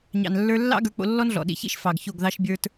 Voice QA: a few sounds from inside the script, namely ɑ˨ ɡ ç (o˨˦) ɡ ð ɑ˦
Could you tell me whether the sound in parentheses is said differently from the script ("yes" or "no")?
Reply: yes